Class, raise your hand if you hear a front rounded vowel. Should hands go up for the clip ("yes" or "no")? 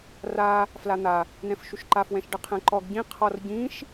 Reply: no